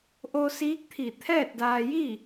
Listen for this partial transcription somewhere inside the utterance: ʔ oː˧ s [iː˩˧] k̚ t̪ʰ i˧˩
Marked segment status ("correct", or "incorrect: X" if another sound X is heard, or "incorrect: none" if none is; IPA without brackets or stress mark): incorrect: iː˧˥